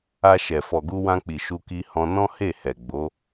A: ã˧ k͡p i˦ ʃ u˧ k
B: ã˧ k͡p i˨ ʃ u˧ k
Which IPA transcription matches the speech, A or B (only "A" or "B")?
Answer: B